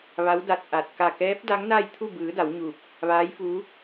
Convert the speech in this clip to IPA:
ʋa˧˥w da˧˩t̚ ʔa˧˩t̚ ka˧˩kɛː˧˥p̚ da˧˥ŋna˥˨jt̪ʰu˥˨ bɯː˩˧ da˩˧wɲuː˧˩p̚ | ʋaː˧˥jfuː˧˥

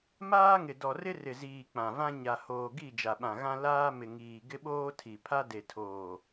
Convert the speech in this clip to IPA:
maː˦ŋɪ˨ dɔ˨rɪ˦rɪ˨ziː˨ k͡pã˨vã˦ ɲa˨hoː˨ɡi˦˨ d͡ʒa˨ɓã˨ɣã˦ laː˦mɪ˨ŋiː˨ ɡɪ˦ɓoː˦ tʰi˨pʰa˦ de˨tʰoː˨

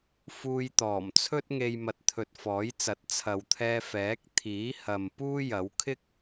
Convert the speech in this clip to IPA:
fuː˧jt̪ɔː˨˩mt͡sʰɵ˥t̚ŋe˧j mɐ˨t̚t̪ʰɵ˨t̚ fɔː˨˥jt͡sɐ˨˥t̚ t͡sʰɐ˨˧wt̪ʰɛː˧ fɛː˨˥k̚ t̪ʰiː˨˥hɐ˨m puː˥jɐ˨˥w kʰɪ˥k̚

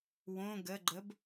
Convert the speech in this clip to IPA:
wõ ɡəɡ͡ǃəb

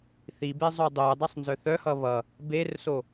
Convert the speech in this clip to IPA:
θibe zˤodˤodˤesˤ nzœθœhʌ βʌ | berso

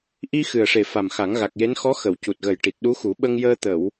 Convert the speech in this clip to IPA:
ʔi˧ xɨ˨˩ə̯ʂe˨˩ fa˨˩mxa˨˩˦ŋɣa˨˩k̚je˧˥n xɔ˧˥ xə˨˩˨w cu˨˩t̚ɣə˨˩j ʈi˨˩t̚ɗu˧˥xu˨˩˦ ɓə˧ŋjəː˧ t̪ə˨˩˨w

